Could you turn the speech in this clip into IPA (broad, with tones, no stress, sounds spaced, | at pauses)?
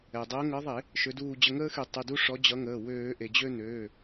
ɛ˩ dˤ əː˨˦ ŋ əː˨˦ ðˤ e˧˩˧ | ʃ ø˨˦ d uː˦˨ d͡ʑ ə˦˨ ŋ əː˦ x y˧˩˧ tˤ y˩˧˩ d u˦ ʂ ɔ˨˦ d͡ʑ ʌ˨˦ ŋ əː˩˧˩ w øː˧˩˧ ʔ e˩ d͡ʑ ø˦ n øː˩˧˩